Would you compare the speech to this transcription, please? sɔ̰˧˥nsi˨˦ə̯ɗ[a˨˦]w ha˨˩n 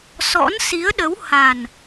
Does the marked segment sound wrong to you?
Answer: yes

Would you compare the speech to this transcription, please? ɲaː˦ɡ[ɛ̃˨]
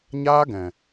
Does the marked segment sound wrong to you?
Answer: no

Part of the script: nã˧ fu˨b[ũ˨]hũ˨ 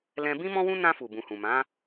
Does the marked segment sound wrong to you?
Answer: no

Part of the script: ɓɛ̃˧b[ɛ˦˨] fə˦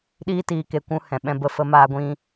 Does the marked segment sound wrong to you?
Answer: yes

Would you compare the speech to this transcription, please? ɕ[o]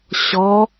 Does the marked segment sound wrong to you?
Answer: yes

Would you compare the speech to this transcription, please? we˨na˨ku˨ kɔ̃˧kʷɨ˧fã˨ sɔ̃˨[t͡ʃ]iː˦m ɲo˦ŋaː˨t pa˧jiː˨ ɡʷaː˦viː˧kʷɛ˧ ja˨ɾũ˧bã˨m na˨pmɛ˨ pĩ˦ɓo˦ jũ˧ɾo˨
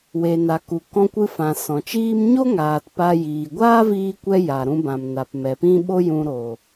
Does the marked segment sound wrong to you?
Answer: no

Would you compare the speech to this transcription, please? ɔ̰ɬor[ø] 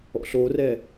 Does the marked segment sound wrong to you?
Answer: yes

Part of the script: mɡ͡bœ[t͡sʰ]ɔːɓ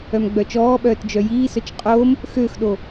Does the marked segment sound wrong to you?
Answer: yes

